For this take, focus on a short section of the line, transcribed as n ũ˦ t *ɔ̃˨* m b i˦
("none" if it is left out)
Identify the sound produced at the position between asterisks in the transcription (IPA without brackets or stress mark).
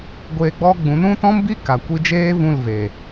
ɔ̃˦